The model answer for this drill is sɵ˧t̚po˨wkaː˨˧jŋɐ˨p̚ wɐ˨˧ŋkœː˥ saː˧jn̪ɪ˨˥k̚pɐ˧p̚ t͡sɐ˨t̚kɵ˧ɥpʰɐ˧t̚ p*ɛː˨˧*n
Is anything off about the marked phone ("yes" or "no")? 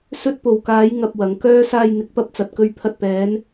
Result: no